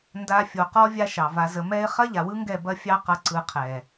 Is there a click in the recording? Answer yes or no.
yes